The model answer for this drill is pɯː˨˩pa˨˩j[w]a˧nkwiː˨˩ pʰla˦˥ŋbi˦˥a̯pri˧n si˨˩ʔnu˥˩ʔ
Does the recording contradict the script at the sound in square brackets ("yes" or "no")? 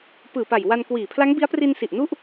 no